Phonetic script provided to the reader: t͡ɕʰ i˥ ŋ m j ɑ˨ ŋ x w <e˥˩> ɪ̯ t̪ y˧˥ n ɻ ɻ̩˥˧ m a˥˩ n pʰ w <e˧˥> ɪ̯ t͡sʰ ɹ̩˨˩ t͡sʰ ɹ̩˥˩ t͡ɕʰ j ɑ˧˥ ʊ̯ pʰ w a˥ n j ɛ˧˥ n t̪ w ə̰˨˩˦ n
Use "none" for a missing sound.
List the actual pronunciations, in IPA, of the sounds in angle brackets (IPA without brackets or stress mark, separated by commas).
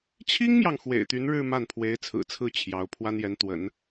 ḛ˨˩, e˧˥